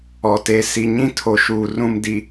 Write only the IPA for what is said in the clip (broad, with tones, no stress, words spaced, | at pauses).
ɔ˨te˨ si˨ɲĩ˦tʰo˨ʃuː˨ rũ˨mdi˨